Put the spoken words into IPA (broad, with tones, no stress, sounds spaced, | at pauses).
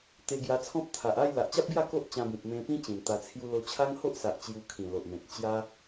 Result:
t̪ e˧ ɡ j a˧ t͡sʰ ɔ̃˦ p̚ t̪ʰ a˨ ʔ a˥˧ j l a˨ ʔ t͡ɕ a˦ p̚ ɡ j a˥˧ k o˦ ʔ t͡ɕ ã˧ b ĩ˨ p̚ m ẽ˧ p ĩ˦ t͡ɕ ĩ˨˩ n t̪ a˧ t͡sʰ j u˧ l o˧ t͡ɕʰ a˦ ŋ h o˦ ʔ s a˨ ʔ t͡ɕ j u˧ kʰ ĩ˨˩ l o˨ ʔ m ẽ˨ t̚ t͡ɕ j a˦